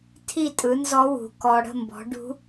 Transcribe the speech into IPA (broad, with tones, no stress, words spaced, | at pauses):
tʰi˥˨tʼɯ˨˥nzɔ˦˥wṳ˧˩ kɔ˧ ɽə̤˥˨mbɔ̤˨˥ ɖṳ˦˥